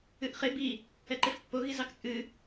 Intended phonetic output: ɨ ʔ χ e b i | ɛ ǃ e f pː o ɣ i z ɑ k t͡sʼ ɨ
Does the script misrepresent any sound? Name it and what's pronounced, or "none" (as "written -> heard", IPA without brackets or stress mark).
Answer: none